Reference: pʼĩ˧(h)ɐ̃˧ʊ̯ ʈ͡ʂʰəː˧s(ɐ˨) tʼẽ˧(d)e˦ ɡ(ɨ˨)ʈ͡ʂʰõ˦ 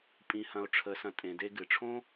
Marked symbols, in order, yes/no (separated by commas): yes, no, yes, yes